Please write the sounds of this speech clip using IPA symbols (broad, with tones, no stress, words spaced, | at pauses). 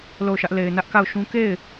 lo˦˨ʊ̯ʃä˦ʔ le˨ɪ̯ nä˦ʔka˦˨ʊ̯ʃũ˦ ke˦˨ɪ̯